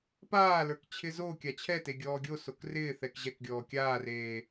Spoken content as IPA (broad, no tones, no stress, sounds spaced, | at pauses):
p aː l ə˞ k t͡ɕʰ ɪ z o kʲ a t͡ɕʰ ɛ t e ɡʲ ɔː ɡʲ o s o k r ɪː θ ɛ k ʑ ɛ k ɡʲ ɔː kʲ aː r eː